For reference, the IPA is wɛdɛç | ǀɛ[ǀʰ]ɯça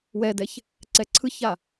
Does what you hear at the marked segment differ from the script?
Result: no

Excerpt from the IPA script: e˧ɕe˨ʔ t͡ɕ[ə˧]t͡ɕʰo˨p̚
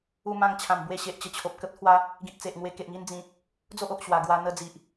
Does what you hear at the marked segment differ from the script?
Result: no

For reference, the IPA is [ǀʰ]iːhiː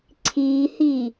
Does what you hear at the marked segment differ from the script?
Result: no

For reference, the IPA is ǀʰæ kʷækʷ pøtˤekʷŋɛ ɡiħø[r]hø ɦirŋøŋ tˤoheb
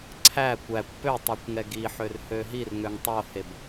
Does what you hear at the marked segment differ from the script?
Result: no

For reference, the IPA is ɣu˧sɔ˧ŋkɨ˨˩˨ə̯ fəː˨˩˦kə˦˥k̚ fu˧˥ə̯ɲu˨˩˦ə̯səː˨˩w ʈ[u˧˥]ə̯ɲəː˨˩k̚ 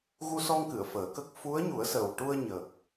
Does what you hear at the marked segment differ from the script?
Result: yes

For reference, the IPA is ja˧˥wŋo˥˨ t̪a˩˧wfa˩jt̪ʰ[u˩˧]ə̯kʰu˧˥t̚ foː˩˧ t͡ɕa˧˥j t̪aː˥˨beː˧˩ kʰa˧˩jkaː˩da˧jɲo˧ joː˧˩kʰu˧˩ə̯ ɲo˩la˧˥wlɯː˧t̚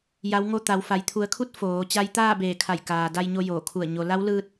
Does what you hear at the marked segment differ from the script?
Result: no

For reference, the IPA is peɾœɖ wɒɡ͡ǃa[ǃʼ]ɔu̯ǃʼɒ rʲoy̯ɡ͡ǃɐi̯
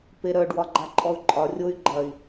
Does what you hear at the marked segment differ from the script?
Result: no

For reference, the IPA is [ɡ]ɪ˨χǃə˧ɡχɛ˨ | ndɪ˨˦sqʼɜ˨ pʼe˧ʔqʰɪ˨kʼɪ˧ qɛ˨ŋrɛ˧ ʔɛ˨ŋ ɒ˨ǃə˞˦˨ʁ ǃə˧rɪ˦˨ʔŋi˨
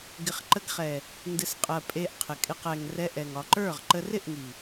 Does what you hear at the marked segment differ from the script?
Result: no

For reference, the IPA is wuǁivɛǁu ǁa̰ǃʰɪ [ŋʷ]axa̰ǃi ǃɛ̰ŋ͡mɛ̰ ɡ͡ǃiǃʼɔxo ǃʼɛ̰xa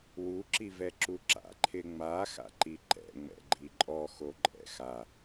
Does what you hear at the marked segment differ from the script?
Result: yes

